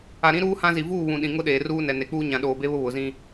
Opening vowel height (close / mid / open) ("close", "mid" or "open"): open